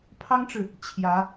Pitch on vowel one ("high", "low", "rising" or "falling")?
high